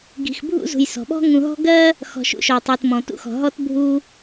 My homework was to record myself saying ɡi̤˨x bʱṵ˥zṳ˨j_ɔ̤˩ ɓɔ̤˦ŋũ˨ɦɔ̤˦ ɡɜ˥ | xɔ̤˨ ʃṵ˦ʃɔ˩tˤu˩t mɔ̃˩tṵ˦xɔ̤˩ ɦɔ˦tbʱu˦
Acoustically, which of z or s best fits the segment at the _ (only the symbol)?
s